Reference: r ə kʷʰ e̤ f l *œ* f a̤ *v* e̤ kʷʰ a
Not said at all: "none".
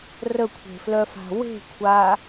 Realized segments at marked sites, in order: œ, w

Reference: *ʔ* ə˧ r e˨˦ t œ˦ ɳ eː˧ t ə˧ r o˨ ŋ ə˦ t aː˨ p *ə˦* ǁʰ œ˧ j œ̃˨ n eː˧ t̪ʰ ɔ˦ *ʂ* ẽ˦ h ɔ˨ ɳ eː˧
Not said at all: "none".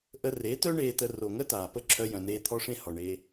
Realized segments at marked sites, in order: ʔ, ə˦, ʂ

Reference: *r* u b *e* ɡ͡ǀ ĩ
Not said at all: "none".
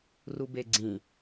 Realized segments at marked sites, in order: r, e

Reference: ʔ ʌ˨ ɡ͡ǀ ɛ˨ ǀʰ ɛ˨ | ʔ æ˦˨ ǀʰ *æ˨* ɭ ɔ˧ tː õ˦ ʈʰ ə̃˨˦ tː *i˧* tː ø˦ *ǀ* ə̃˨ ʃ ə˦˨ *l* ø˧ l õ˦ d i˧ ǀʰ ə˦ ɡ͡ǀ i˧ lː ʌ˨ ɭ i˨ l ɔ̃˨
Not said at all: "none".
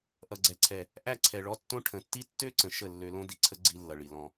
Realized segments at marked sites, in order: ɛ˨, i˦, ǀ, lː

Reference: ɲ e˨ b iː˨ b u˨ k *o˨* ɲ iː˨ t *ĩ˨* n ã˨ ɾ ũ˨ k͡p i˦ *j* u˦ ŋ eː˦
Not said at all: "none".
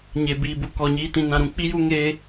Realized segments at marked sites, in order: ɔ˨, ĩ˨, j

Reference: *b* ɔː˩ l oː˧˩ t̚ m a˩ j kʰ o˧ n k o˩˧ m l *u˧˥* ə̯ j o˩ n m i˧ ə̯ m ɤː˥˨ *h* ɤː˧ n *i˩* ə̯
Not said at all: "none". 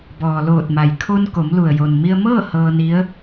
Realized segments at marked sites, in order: b, u˩, h, i˧˥

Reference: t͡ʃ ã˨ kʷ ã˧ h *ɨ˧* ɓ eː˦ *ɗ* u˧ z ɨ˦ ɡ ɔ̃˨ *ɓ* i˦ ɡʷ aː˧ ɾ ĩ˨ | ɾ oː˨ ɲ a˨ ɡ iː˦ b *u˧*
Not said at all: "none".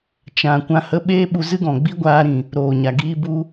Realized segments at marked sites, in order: ə˧, ɓ, ɡ͡b, u˧

